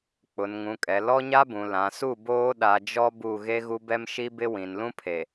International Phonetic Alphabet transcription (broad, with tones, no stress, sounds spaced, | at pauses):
k͡p ʊ˨ n ŋ ũ˨ kʼ ɛ˨ l ɔ˦ ɲ a˦ b ũ˨ l ã˨ s u˦˨ b oː˦ ɗ a˨ d͡ʒ ɔ˦ b u˦˨ ɣ e˦ ɣ u˦ b ɛ˦ m ʃ i˦ b ɪ˦ w ĩ˨ n l ũ˦ pʰ e˨